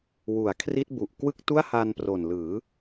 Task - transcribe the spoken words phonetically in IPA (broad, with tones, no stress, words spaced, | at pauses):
wu˩˦a̯kʰri˦˥t̚ bu˨˩ʔ kwɯ˥˩k̚tu˥˩a̯ha˧n pro˨˩nlɯː˩˦